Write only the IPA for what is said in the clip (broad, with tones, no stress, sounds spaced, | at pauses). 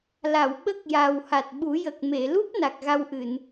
l a˨˩˨ w ɓ ə˦˥ k̚ j a˨˩ w h a˨˩ t̚ ɓ u˨˩˦ j ə˨˩ k̚ m e˨˩˨ l u˦˥ p̚ n a˨˩ k̚ ɣ a˧ w ʔ ɨ˨˩˨ n